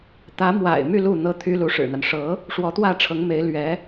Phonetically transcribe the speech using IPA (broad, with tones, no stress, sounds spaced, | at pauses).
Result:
t̪ ä˧˥ m w a̰˨˩ ɪ̯ m y˥˧ l u˥˧ n̪ ɤ˥˩ t̪ʰ y˥ l u˧˥ ʂ ɻ̩˨˩ n̪ a˦ n ʂ ɤ˧˥ | ʂ w ɔ˧˥ t̪ w ä˥˩ ʈ͡ʂʰ ɤ˧˥ ŋ m e˧˥ ɪ̯ l ɥ ɛ˧˥